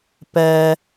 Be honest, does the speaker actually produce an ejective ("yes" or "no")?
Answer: no